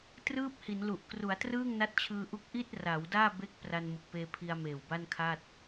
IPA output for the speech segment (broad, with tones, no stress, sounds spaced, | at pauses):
t r ɯː˥˩ p̚ h i˩˦ n l u˨˩ ʔ k r u˩˦ a̯ t r ɯː˥˩ ŋ n a˦˥ t̚ t͡ɕʰ ɯː˧ ʔ u˦˥ k̚ ʔ i˥˩ t̚ r a˩˦ w d aː˥˩ b e˦˥ k̚ p r a˧ n m ɯ˨˩ k̚ p eː˧ pʰ i˧ a̯ m eː˨˩ w b a˥˩ n kʰ a˥˩ t̚